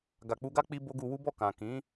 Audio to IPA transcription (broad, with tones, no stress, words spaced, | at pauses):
ɡa˨k͡pu˧ɡa˦ k͡pi˦bo˦ ɡu˧wu˦bɔ˦˨kã˨ kĩ˨˦